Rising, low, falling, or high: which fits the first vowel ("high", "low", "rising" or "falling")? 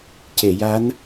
low